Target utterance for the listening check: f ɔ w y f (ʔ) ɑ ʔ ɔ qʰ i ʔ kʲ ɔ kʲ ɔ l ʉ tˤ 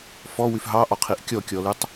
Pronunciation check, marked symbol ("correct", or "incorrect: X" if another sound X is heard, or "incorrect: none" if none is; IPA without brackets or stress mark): incorrect: ɦ